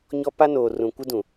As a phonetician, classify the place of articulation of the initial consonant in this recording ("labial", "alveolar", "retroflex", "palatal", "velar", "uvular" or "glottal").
palatal